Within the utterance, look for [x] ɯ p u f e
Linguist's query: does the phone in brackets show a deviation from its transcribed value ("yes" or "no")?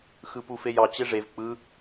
no